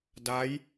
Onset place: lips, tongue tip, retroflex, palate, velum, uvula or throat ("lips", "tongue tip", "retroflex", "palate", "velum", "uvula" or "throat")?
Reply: tongue tip